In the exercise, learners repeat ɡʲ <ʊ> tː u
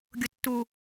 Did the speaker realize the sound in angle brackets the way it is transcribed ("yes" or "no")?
yes